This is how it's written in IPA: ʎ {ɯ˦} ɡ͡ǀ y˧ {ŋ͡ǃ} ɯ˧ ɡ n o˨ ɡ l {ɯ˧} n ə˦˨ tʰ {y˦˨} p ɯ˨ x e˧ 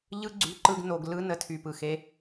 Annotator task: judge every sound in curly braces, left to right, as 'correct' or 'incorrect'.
correct, incorrect, correct, incorrect

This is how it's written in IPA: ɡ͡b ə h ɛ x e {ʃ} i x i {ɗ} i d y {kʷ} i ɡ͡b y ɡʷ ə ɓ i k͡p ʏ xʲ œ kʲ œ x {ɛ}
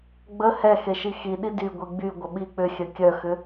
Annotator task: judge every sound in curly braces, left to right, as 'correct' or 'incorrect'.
correct, correct, incorrect, incorrect

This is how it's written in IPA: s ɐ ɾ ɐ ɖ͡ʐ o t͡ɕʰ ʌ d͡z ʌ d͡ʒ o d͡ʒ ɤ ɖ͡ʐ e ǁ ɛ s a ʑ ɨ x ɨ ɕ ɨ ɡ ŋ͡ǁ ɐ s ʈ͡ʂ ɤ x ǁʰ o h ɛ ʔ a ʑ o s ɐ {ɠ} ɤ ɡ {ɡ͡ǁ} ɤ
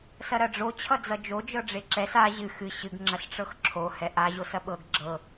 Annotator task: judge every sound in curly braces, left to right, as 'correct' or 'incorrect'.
incorrect, correct

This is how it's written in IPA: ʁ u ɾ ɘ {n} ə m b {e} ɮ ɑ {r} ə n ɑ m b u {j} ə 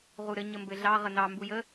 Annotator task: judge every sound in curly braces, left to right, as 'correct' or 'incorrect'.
incorrect, incorrect, incorrect, correct

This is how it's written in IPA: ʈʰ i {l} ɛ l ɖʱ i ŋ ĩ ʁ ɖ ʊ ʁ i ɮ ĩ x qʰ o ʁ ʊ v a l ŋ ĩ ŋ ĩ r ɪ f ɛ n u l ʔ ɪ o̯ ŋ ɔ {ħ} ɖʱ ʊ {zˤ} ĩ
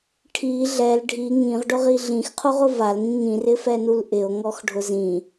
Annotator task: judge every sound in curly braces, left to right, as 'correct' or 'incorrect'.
incorrect, incorrect, incorrect

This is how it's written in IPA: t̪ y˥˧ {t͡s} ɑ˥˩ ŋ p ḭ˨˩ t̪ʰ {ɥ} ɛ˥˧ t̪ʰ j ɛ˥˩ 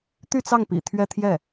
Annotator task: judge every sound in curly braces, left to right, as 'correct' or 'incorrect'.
correct, correct

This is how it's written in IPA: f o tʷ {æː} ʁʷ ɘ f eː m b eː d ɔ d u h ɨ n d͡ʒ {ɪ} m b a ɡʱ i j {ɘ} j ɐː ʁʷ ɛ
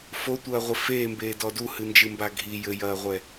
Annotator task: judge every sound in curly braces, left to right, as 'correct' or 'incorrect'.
incorrect, incorrect, correct

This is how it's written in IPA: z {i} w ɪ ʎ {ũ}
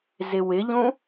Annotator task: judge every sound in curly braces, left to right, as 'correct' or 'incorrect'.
incorrect, correct

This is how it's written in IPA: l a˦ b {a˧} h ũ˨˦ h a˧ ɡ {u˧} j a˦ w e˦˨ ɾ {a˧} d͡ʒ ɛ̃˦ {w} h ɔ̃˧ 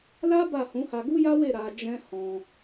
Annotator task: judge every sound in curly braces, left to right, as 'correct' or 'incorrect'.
incorrect, incorrect, correct, incorrect

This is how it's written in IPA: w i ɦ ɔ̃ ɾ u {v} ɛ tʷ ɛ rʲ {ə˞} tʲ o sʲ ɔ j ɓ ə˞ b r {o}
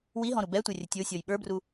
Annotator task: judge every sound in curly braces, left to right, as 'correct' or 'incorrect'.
incorrect, incorrect, incorrect

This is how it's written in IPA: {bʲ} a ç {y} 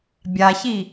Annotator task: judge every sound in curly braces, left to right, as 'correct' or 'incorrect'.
correct, incorrect

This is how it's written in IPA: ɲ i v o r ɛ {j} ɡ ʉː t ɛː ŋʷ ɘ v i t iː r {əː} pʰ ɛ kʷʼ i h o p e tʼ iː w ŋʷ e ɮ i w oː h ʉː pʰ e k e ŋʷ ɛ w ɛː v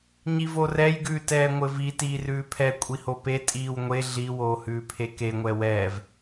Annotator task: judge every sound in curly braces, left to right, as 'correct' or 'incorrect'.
correct, incorrect

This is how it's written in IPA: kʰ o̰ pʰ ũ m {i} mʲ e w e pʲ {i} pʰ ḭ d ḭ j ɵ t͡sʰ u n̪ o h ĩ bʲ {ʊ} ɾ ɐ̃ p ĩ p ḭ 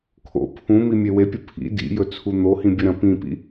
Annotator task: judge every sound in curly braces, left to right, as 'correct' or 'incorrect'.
correct, incorrect, incorrect

